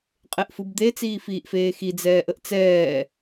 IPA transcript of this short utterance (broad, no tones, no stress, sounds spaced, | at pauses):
qʼ e ʔ f ɯ b d̪ e t͡s iː f iː ʔ f eː x i d͡z ɛː ʔ ə ʔ t͡s ɛː